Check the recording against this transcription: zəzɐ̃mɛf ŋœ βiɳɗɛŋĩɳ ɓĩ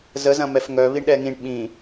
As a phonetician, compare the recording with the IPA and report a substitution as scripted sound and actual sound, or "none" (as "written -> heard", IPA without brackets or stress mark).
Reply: none